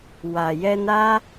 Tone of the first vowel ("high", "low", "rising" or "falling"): low